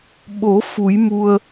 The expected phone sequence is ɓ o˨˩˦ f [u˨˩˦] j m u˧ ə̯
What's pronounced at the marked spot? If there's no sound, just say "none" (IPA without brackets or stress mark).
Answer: u˨˩˦